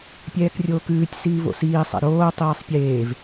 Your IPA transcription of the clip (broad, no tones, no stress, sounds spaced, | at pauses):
pʲ ɛː k rʲ oː k ʉː tʲ s iː v o̰ s iː sˤ ɛ̰ ɾ oː tˤ iː sˤ pʲ eː v